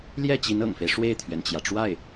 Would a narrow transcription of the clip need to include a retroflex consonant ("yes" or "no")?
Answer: yes